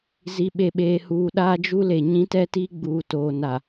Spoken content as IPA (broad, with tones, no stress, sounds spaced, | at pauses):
z i˨ ɓ e˨ ɓ eː˨ h uː˨ ɗ aː˦ d͡ʒ u˦ l e˨ ɲ ĩ˦ t ɛ˦ t iː˦ ɡ͡b uː˨ t oː˨ n a˨